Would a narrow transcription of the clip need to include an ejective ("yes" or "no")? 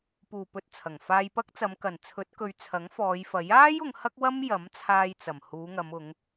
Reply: no